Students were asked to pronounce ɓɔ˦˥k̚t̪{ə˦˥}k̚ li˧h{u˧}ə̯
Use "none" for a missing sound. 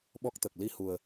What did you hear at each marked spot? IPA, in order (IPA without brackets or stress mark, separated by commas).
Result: ə˨˩, u˨˩